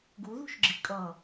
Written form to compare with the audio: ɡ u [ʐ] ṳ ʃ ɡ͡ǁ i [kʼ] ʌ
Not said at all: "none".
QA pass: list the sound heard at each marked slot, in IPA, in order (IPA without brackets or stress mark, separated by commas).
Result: ð, kʼ